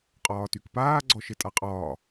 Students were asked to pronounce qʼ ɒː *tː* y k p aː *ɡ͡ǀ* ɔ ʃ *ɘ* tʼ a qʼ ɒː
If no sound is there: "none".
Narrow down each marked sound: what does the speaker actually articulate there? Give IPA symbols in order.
t, ɡ͡ǀ, ɘ

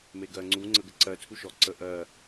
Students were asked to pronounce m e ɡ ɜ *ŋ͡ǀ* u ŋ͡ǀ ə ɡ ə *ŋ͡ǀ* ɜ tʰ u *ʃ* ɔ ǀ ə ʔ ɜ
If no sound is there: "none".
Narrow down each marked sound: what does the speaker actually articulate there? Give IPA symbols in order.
ŋ͡ǀ, ǀ, ʃ

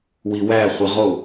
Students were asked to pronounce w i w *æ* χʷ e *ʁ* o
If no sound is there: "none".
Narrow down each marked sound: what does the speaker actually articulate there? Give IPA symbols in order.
æ, ʁ

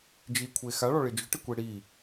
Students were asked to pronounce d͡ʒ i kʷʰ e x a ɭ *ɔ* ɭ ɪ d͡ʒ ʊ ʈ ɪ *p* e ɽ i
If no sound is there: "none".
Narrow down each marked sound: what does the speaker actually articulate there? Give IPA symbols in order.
ɔ, kʷ

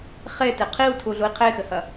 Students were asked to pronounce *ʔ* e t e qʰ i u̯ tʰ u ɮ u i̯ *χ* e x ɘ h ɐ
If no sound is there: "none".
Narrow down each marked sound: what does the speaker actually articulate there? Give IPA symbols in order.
χ, qʰ

